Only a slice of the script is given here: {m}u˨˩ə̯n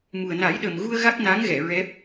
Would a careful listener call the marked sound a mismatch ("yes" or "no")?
no